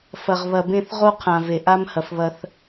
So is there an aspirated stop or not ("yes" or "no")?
yes